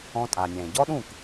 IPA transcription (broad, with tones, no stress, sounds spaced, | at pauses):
ɔ̃˧ tʼ a˩ nʲ ɛ̃ː˩ ɟ ɔ˥ ɗ ũː˥˩ k